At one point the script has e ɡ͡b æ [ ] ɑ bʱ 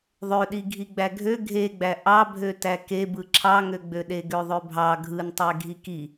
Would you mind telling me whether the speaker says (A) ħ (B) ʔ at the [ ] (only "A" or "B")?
B